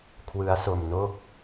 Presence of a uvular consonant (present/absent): absent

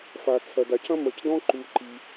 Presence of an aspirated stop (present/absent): present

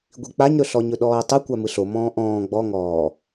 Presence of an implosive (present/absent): present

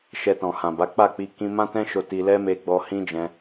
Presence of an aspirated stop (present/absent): absent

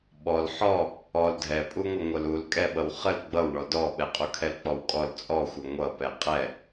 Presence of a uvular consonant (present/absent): present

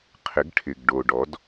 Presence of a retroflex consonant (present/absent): present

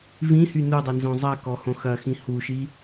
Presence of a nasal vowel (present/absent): present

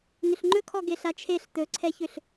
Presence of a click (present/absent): present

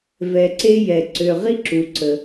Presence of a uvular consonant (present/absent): present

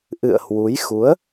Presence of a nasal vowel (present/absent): absent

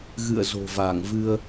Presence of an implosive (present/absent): absent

